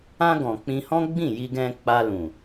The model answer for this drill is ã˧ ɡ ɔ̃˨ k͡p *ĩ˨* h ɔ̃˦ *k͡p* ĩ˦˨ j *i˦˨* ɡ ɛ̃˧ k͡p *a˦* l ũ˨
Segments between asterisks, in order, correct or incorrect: incorrect, incorrect, incorrect, incorrect

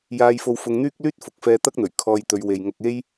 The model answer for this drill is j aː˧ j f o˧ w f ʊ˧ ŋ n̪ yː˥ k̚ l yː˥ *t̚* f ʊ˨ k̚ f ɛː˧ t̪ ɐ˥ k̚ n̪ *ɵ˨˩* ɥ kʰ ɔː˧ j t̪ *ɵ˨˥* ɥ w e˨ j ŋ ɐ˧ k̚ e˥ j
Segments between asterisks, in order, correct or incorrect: correct, correct, incorrect

